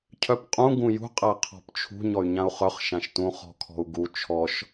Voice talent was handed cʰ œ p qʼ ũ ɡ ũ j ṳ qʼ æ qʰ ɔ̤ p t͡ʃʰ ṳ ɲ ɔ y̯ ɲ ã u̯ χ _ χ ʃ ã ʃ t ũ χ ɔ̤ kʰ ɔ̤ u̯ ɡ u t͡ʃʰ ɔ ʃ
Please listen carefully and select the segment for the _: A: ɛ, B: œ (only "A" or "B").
B